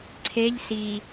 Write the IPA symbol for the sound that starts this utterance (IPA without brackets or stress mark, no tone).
ǀʰ